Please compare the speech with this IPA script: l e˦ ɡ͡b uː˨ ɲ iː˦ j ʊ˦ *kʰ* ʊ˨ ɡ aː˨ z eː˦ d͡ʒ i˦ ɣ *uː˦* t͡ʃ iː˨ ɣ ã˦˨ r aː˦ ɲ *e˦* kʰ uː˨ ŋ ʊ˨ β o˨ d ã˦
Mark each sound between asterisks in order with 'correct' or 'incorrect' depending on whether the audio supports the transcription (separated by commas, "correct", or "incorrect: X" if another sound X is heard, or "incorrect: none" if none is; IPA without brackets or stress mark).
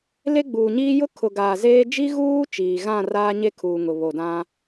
correct, correct, correct